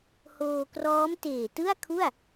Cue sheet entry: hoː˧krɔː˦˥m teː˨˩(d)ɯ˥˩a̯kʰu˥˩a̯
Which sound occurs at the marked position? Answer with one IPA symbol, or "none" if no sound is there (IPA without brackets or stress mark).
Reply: t